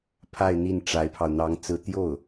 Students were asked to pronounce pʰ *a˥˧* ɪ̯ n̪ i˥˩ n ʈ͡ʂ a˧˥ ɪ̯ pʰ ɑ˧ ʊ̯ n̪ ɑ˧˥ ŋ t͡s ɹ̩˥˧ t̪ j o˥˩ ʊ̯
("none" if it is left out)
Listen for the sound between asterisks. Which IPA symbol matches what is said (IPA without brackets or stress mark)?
a˥˧